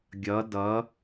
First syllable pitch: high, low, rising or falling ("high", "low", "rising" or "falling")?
rising